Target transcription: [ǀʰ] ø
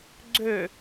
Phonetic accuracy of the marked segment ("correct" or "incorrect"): incorrect